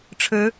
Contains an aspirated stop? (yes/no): yes